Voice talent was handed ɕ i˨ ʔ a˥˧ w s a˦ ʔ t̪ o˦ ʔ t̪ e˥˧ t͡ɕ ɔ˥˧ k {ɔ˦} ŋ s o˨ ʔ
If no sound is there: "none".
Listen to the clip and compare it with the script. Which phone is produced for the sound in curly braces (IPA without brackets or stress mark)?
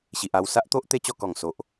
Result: ɔ˨˩